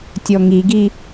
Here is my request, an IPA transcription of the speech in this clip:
tʲɔŋiɡi

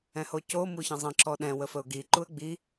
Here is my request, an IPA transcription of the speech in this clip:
ɛ̃hoco muçə̃zˤə̃ ǁɔɗɛ̃ wəfəʊ̯ɡi ǃuə̯ɡ͡bi

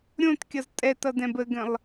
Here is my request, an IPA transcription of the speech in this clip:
ɾʲõtkʲʌz tʼɛtʌdɛ̃b əɡə̃lˠ

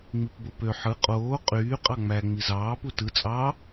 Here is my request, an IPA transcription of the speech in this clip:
ŋ͡mipbopø ħɯ qʼoː qʼyː qʼɑŋ͡mæ ŋ͡mizɑː putɯ t͡sʼɑ

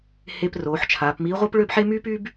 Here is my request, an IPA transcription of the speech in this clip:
he˧p roː˩˧ħt͡ʃʰaː˩˧pmiː˧˥ ʁʷəː˥pɭø˥bħe˥ myː˥pyː˥b

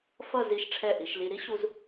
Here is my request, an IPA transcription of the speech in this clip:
fʌ˥˧ zi˧˩ʃʈ͡ʂʰɛ˧˩ ʔi˩˧ʃli˧ ɾi˥ɕu˧z

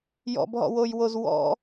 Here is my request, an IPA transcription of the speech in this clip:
jɔ̰bɦɔ̰wojwoz wɔ̰

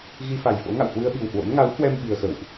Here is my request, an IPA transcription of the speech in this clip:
ɣi˧fa˨˩jfo̰˧˥ŋa̰˧˨w hwɨ˧ə̯ɓi˨˩whwo̰˧˥n ŋa˨˦whwɛ˧m ɓi˧ə̯xə̰˧˨wʔ

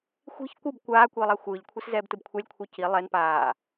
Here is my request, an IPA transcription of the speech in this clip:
xʷi̤ç kʷɯb kʷaːkʷiːlˠa xʷɯːʎkʷʰis zɛːbtɯbkʷʰɛlʲkʷʰi ci lˠɛn paː

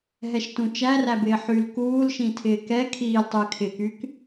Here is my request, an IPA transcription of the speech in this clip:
ɦɛʃtũt͡ʃæræ bɪːħyl kuːlʃĩ tʰɪːkɛ kʰiːltˤuy̯ kʰɪkyk

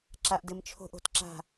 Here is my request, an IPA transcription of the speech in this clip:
ǁa˨ʔdɘ˨m t͡ʃʰo̤˦ʔ o̤˨tǁa̤˦˨

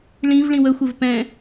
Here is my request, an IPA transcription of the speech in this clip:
ɭĩv ɭĩwəxʷɘv pɛ̃

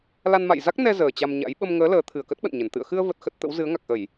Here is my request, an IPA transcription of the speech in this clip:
la˧nma̰˧˨jza˦˥k̚ nɛ˧ zəː˨˩ t͡ɕa˧mɲa̰˧˥j ɓə˧mŋəː˨˦ ləː˨˦ t̪ʰɨ˨˩ə̯kə˦˥t̚ɓə̰˧˨nɲə˧˩n t̪ɨ̰˧˨ə̯xɨ˧ə̯və˨˩t̚ xə˦˥t̚t̪ə̰˧˥w zɨ˨˦ə̯ŋa˨˩k̚ʔə˧˩˨j

